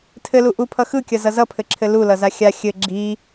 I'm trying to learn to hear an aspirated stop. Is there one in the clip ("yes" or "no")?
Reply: yes